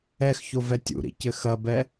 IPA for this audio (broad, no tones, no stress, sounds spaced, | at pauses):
ɛ x ç o v ɛ tʲ ṵ ɾ ḭ c ɘ x ɐ b ɛ